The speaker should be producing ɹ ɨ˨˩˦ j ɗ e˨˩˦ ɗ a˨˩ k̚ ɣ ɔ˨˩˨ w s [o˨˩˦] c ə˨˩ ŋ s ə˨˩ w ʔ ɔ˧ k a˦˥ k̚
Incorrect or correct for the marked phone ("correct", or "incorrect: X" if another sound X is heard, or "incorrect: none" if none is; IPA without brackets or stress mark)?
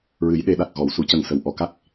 incorrect: u˨˩˦